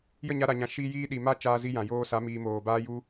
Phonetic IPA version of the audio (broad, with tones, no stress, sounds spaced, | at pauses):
j ə˦˨ ɲ a˧ ɾ a˨ ɲ ã˨ ʃ iː˧ j iː˧ ɗ i˨ m a˦ t͡ʃ aː˧ z i˧ j ã˨ j oː˧ s a˨˦ m iː˨ m oː˨ b aː˧ j u˧